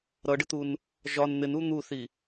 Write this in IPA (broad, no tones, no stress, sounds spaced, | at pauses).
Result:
ɾ ʌ ɖ ɪ t̪ u n | ʒ ɒ n n̪ ɪ n u n̪ u θ i